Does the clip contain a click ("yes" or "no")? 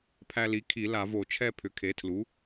no